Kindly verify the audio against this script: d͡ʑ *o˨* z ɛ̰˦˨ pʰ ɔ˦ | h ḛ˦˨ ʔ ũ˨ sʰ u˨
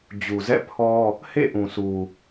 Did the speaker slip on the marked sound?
yes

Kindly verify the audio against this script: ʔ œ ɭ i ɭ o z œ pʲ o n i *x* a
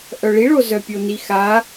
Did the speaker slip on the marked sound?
no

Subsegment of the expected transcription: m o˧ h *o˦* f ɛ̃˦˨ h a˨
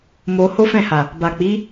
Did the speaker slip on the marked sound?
no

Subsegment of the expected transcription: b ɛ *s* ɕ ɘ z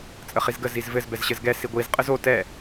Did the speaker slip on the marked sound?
yes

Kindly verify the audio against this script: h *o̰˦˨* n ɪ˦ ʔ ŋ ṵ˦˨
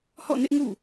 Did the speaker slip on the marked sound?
yes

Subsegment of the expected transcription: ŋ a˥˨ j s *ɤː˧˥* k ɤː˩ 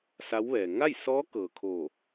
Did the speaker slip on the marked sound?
yes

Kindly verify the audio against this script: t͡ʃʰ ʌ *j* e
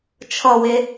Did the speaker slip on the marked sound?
yes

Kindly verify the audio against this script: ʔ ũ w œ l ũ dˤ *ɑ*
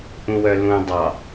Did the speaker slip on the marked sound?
no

